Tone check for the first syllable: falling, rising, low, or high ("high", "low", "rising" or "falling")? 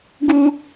high